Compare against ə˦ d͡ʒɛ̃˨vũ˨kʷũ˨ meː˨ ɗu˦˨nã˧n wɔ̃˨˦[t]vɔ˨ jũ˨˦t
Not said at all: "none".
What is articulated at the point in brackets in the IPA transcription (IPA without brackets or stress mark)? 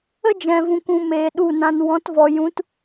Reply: t